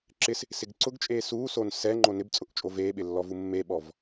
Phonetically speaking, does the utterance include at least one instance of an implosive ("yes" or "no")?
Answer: yes